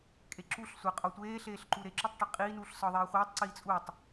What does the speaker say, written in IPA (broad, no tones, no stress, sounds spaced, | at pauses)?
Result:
kʼ e ǁ u ɬ sʷ æ qʼ ɒ tʷ eː ɬ eː ɬ ǃ u ɾ e ǁ u tˤ ʈ i qʼ iː n uː ɬ s ɒ ðˤ iː χʷ iː tˤ ǀ iː t͡sʼ u tˤ